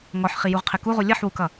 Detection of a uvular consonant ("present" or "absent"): present